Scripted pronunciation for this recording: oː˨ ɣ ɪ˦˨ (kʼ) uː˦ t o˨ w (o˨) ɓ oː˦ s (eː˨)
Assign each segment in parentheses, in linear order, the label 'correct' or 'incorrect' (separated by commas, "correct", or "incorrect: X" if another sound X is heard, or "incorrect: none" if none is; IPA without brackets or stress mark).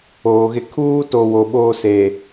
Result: incorrect: kʰ, correct, correct